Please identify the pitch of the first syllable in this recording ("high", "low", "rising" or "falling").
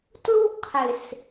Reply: high